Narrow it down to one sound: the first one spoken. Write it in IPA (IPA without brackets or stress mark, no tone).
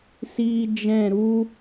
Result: s